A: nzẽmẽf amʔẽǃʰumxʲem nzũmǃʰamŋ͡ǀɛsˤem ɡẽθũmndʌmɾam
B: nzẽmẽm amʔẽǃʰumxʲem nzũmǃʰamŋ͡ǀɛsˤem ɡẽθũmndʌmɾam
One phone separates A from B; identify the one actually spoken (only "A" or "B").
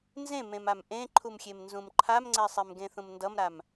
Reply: B